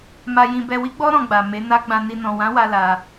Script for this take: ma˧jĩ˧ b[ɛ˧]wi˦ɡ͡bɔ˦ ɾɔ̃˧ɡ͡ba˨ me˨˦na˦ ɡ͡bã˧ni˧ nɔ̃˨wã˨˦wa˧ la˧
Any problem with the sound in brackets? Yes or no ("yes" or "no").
no